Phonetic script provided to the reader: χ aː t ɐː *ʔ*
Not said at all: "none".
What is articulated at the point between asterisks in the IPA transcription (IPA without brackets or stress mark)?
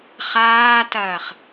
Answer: χ